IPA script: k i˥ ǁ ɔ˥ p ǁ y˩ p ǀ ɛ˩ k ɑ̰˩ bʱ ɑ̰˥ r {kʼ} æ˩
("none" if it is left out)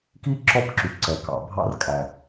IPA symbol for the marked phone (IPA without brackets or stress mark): kʼ